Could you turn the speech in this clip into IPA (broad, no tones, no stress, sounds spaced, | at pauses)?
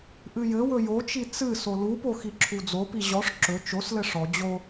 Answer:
ʔ ɨ j ɘ w ɵ j o t͡ʃ i t͡s ɨ s o l u p o x i ǁʰ u d͡z o p i ʑ ɔ ʂ ǁ ɵ t͡ʃ o s l ɘ ʂ ɔ d͡ʑ o